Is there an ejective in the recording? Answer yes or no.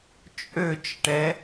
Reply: yes